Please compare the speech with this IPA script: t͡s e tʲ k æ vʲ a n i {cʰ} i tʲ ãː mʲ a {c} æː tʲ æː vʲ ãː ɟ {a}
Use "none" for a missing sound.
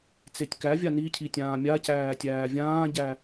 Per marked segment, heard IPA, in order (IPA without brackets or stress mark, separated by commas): cʰ, c, æ